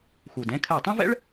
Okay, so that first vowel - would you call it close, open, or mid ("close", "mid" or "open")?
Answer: close